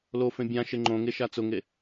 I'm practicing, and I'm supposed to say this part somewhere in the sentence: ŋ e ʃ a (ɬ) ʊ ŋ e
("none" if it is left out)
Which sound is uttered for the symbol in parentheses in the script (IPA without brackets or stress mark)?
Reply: t͡s